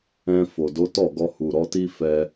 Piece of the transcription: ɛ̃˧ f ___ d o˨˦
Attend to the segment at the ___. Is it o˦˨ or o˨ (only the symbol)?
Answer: o˨